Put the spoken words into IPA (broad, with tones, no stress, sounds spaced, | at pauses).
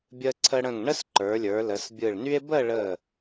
bʲ ə˧ ǀʰ ə˧ ɽ ə̃˧˩ ŋ ɳ ə˥ s ǃ ə˞˩˧ lʲ ə˞˩˧ l ə˩˧ s bʲ ɯ˧˩ ɭ n y˥ e̯ b ə˥˧ ɭ ə˧˩